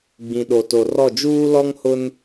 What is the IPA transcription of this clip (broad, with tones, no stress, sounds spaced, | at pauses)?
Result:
ɡ͡b ĩ˨ ɗ o˨ t o˨ r ɔ˦˨ d͡ʒ uː˦ l ɔ˦ ŋ h ʊ˦ n